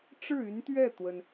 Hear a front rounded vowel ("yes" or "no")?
yes